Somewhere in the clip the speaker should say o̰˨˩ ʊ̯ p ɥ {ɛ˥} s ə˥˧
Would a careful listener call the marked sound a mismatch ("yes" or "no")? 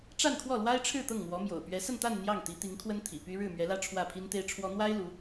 yes